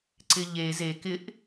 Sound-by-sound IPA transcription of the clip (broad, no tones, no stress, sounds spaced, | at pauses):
ǀ ɪ ʎ e z e k ɪ ʔ